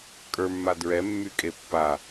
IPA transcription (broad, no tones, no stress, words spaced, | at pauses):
kʼə˞mːa dɹɛmːykʼe pːa